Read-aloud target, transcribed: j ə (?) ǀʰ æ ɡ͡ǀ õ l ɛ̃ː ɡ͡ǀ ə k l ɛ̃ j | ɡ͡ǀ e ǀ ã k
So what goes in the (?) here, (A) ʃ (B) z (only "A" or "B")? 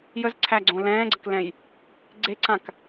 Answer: B